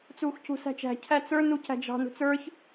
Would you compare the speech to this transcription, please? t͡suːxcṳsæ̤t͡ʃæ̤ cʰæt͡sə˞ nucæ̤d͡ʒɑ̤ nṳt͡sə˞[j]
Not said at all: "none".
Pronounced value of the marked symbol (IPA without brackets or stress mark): ç